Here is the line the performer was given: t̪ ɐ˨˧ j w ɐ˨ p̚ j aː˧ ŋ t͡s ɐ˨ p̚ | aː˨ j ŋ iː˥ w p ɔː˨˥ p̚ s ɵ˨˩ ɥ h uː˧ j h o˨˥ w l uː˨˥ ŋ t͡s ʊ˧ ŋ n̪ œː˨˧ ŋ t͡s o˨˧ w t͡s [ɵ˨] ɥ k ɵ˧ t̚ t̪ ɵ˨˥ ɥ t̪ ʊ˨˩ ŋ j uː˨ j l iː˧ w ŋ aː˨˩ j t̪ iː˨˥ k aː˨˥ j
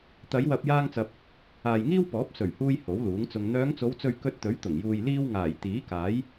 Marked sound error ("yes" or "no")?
no